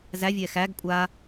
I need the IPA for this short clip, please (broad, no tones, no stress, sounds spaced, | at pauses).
z æ vʲ ɛ x æ ɡ kʷʼ a